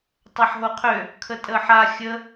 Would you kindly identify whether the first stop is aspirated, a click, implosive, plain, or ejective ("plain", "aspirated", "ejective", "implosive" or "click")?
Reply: plain